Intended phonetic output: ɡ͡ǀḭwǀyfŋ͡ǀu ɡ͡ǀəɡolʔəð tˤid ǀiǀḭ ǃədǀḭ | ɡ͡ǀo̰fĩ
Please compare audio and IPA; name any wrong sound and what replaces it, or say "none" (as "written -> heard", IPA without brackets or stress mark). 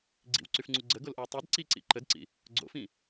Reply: ð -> w